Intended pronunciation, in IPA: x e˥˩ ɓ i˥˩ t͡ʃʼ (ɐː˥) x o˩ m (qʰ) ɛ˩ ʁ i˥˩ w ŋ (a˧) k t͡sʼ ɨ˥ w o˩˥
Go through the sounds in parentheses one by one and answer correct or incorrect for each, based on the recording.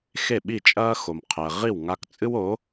correct, correct, correct

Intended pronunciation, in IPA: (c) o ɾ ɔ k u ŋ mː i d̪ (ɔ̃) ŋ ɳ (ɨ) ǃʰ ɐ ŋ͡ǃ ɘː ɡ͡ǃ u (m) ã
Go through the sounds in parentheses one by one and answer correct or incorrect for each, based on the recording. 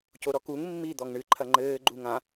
correct, incorrect: ɔ, correct, incorrect: ŋ

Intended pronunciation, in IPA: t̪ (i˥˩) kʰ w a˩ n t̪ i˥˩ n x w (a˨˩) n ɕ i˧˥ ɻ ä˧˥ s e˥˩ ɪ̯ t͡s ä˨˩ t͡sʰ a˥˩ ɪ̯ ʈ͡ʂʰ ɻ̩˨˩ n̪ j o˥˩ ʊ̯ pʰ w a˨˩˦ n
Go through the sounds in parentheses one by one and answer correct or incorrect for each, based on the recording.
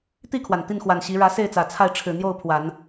correct, correct

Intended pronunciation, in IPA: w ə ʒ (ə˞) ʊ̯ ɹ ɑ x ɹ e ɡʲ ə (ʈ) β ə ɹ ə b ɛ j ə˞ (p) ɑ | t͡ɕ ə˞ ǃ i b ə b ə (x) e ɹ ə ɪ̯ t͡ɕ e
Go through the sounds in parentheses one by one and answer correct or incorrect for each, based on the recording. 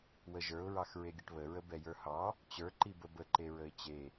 correct, correct, incorrect: h, incorrect: ǃ

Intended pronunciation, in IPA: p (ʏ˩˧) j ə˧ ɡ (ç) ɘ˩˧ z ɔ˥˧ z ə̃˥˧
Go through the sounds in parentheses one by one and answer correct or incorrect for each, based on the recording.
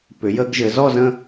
correct, incorrect: ʒ

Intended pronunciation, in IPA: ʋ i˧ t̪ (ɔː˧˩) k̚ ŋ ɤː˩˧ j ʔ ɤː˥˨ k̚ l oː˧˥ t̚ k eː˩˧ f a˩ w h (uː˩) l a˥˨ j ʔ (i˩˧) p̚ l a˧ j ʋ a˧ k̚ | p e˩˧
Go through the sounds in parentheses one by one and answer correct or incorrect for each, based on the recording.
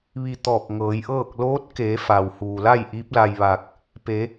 correct, correct, incorrect: i˧˥

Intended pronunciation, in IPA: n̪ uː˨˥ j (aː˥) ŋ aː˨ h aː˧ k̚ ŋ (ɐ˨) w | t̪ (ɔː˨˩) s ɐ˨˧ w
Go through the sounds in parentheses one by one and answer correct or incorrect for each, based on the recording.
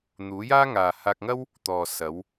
correct, incorrect: ɐ˥, incorrect: ɔː˨

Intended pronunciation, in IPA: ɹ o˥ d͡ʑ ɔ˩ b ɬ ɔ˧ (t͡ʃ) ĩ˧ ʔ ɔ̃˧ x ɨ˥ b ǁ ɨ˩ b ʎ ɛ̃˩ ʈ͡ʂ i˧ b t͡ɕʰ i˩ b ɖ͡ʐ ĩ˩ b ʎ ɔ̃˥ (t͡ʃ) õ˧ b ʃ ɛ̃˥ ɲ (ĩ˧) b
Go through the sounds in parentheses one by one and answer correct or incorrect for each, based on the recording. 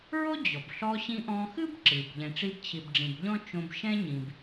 incorrect: ɕ, correct, incorrect: ĩ˩

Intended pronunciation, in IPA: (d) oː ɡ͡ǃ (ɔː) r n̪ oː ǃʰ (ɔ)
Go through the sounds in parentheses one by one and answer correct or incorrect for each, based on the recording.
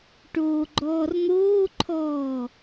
incorrect: ʈ, correct, incorrect: ɔː

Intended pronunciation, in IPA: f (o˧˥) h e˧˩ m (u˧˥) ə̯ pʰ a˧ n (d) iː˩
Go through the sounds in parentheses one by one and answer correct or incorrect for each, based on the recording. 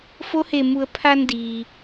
correct, incorrect: u˩˧, correct

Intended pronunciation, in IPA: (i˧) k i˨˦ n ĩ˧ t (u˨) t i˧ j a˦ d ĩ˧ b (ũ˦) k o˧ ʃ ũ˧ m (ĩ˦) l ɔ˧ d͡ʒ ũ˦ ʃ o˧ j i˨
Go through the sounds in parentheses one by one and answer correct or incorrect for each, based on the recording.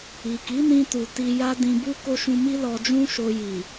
incorrect: i˨, correct, incorrect: u˦, incorrect: i˦

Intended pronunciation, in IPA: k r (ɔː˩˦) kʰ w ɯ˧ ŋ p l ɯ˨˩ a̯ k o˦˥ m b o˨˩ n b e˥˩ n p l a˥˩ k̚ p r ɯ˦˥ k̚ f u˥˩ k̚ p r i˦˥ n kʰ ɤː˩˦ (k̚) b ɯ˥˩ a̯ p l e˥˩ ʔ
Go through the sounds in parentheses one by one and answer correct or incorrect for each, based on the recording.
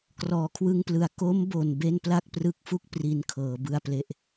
correct, incorrect: none

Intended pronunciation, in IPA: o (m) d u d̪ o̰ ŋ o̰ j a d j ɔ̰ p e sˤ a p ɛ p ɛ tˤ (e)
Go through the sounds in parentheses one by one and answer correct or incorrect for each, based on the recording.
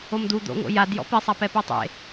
correct, incorrect: ḛ

